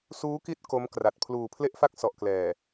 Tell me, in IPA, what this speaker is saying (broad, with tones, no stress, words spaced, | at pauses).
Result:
suː˦˥ki˦˥t̚ ko˦˥mkra˨˩t̚ pʰluː˨˩pʰle˥˩ʔfa˥˩k̚ sɔ˨˩ʔklɛː˨˩